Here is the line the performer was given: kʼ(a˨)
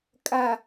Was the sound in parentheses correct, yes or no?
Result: yes